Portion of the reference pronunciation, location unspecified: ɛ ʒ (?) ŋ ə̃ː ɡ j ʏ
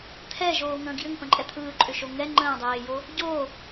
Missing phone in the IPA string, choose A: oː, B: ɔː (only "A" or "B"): A